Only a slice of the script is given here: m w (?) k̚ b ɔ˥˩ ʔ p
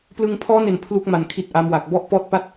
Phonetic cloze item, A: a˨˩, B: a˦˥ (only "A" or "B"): A